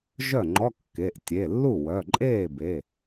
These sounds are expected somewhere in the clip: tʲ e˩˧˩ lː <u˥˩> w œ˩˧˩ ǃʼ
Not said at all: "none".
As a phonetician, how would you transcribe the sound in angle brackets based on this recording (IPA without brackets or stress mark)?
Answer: u˥˩